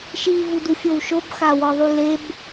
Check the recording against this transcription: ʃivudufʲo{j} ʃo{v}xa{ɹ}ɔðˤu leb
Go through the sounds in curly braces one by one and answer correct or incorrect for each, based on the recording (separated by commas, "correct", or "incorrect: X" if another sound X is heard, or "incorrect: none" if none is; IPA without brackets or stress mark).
incorrect: w, incorrect: b, incorrect: w